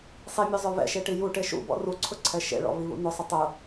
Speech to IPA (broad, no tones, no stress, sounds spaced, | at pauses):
sˤ i mʲ ø zˤ œ β ɛ̰ ʃ e ʈ i j u ʈ e ʃ ṵ b ɔ̰ r u ǀʰ ʊ ǀʰ ɛ ʃ ḛ ɭ ɔ̰ β i β ṵ n ʊ sˤ ʊ tˤ ʊ